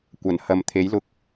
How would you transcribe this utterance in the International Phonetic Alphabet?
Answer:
kʷ ɐ˨˩ n h ɐ˨ m t̪ʰ e˨˥ j l ʊ˧ k̚

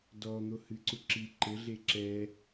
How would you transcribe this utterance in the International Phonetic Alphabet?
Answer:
d ɔ n̪ o h ɨ ǀ u ǁ i ǃ ɘ ɮ e ǁ ɛ

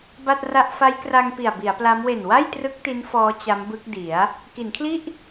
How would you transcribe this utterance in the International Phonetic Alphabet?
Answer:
b a˥˩ t̚ r a˥˩ ʔ f a˦˥ j k r a˧ ŋ p i˨˩ a̯ b i˩˦ a̯ p l a˦˥ m w e˨˩ n w a˥˩ j t r ɯ˦˥ k̚ t i˦˥ n f ɔː˦˥ t͡ɕ a˦˥ m b ɯ˦˥ k̚ d i˩˦ a̯ | k i˩˦ n kʰ l i˥˩ ʔ

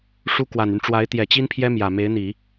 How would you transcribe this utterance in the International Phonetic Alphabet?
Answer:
ʂ u˥ k w a˨˩ n y˦ n ʈ͡ʂ w a˧˥ ɪ̯ t̪ j ɛ˨˩ t͡ɕ i˥ n pʰ j ɛ˥ m j ä˨˩ m e˧˥ ɪ̯ n̪ i˨˩˦

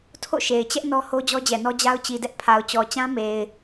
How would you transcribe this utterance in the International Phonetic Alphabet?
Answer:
tʰ o̰˦˨ ʃ e˨ ɪ̯ t͡ɕ ɛ˦ ʔ n ɔ˦ h o˦ d͡ʑ ɔ˦ d͡ʑ ɛ˨ n ɔ˦ d͡ʑ a˦ ʊ̯ t͡ɕ i˨ d ɛ˦ ʔ pʰ a˨ ʊ̯ t͡ɕ ɔ˨ t͡ɕ ã˦ m e˨ ɪ̯

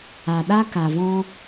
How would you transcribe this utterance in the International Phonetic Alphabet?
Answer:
a˨ ɗ a˧ k a˨ v ɔ̃˧

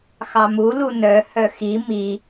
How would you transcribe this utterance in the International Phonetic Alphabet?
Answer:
x ɑ m u l u n œ h œ x i m i

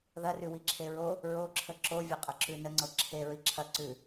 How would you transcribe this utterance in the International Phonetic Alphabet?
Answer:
ð ɐ r ʉ w i ǁʰ e ɹ o | ɹ o ǁʰ ə ǁ o vʲ ɤ qʼ ə ǁ ʉ n ə ŋ͡ǀ ɤ ǁʰ e ɹ i ǁʰ ɐ ǀ ʉ

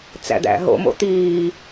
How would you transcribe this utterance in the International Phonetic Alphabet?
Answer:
t͡s æ̰ d̪ æ̰ ɦ o̰ m o̰ t̪ iː

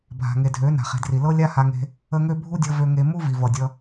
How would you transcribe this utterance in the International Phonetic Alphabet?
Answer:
bʱ a̤˨ ŋ e˨ dʱ ø˨˦ n a̤˨ χ e̤˨ d r i˨ l ɤ˦ lʲ a˦ h a˧ ŋ e̤˧ | ə˦ ŋ ø˦ bʱ u˦ dʲ ɤ˧ v ø˧ ŋ e˧ m u˦ v i˨ v ʌ˨ dʲ ʌ˧

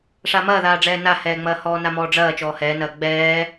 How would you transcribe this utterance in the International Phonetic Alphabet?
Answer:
ʂ a m ɐː ð aː ɖ͡ʐ ɛː n a h ɛː ŋ͡m ɐː h ɔː n a m ɔː ɖ͡ʐ ɐː t͡ʃ ɔː h ɛː n ɐː ɡ͡b ɛː

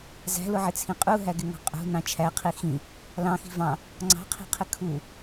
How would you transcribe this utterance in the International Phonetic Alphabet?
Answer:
z æ̤ l ʊ ʕ ɪ t͡sʰ ĩ qʼ u ɦ æ ɡ ɪ ŋ ɑ̤ qʼ ṳ n ɑ̃ t͡ʃʰ æ qʰ i x ĩ | l ɑ̃ x i̤ v ɑ̃ | ŋ͡ǀ ɑ̤ qʰ i̤ qʰ ɪ kʰ u

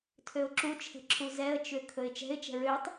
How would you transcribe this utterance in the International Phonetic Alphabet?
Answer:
tʰ ø ʊ̯ ǁ u t͡ʃʰ ɛ̤ ǁʰ u z ɛ ə̯ t͡ʃ ʏ kʰ ɵ ɪ̯ t͡ʃ ɛ̤ ɪ̯ t͡ʃ ɛ̤ ɹ ø tˤ

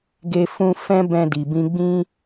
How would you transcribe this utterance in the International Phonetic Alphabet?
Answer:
ɡ e˦ f ũ˦ f ɛ̃˦ b ɛ̃˧ d i˨ b ĩ˧ ɡ͡b ĩ˦

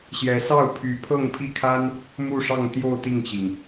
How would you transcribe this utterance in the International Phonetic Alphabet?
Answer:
ɕ j ɛ˧˥ s ɑ˥˩ ʊ̯ pʰ y˧˥ pʰ ɤ˥˧ ŋ pʰ i˥˩ kʰ a˥ n | m u˥˧ ʂ ɑ˥˧ ŋ t̪ j o˥˧ ʊ̯ t̪ i˥˩ ŋ t͡ɕ i˩ ŋ

